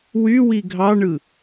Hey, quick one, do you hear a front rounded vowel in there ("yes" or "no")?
yes